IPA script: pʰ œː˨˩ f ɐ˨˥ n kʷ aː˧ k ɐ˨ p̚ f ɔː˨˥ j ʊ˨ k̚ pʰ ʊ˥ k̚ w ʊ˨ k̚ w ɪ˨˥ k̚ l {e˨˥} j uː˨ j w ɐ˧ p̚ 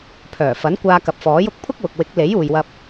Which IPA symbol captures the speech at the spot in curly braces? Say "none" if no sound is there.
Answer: e˨˥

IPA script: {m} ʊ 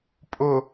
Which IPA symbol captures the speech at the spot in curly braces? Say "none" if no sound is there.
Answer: pʼ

